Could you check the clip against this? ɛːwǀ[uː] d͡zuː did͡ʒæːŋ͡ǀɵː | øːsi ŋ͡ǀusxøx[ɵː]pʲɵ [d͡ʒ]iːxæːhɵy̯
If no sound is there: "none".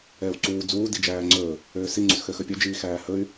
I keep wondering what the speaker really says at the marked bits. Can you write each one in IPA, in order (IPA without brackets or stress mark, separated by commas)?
uː, ɵ, d͡ʒ